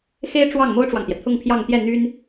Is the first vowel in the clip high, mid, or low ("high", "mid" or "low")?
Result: mid